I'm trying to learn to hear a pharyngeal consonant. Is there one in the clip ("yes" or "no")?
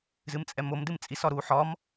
yes